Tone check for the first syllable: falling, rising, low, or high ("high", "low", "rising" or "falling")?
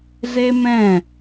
high